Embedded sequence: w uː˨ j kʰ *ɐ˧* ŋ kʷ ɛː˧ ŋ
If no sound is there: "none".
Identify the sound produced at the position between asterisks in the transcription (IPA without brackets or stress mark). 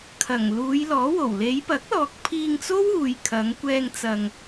ɐ˨˧